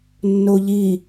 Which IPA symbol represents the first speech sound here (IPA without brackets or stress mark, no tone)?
nː